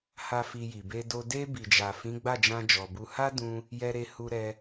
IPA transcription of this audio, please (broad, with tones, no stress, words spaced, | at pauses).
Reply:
ha˦fi˧ji˨ be˧do˧ de˧ bi˨d͡ʒa˨ fĩ˨˦ɡ͡ba˦˨d͡ʒã˧ d͡ʒɔ˨bu˧ ha˦ dũ˧ | jɛ˧ɾe˧ hu˧ɾɛ˧